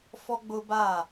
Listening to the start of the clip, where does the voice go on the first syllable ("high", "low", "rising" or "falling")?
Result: high